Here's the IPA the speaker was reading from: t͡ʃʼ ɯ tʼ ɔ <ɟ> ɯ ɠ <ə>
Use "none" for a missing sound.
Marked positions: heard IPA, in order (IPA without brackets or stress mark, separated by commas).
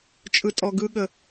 ɡ, ə